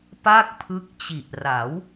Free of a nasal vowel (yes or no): yes